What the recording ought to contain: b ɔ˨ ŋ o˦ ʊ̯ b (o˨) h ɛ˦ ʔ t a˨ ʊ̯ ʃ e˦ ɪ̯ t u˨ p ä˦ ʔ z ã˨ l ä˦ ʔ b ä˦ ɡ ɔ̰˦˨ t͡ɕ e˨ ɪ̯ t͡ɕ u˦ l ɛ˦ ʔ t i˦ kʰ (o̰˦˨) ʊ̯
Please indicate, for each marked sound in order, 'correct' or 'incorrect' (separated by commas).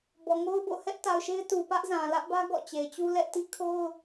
incorrect, incorrect